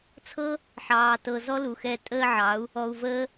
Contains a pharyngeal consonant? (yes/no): yes